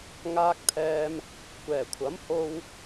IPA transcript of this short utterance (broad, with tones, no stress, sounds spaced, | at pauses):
ŋ aː˧ k̚ t̪ʰ ɛː˧ m | kʷ ɛː˨˩ kʷʰ ɐ˨˥ m h o˧ w